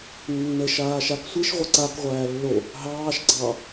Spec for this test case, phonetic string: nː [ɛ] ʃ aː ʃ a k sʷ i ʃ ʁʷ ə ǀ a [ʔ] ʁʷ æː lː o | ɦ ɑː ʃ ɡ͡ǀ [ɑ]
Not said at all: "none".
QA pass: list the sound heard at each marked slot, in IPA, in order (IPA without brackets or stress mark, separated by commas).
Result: ə, k, ɑ